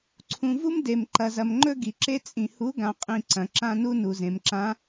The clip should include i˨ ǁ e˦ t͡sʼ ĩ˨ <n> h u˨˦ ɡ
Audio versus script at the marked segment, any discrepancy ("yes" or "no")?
yes